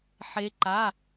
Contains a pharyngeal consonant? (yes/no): yes